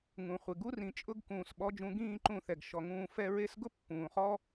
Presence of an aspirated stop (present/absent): absent